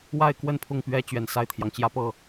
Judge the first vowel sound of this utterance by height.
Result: low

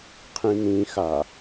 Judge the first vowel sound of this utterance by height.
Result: high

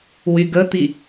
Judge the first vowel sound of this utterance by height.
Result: high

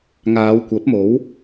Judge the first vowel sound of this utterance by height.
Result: low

